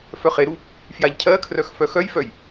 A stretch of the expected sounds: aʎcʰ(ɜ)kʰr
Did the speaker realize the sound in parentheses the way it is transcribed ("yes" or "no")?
yes